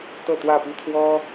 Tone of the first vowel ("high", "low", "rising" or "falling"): falling